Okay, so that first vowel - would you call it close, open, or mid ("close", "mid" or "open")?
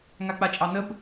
open